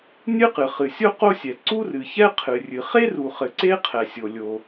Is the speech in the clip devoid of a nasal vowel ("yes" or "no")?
yes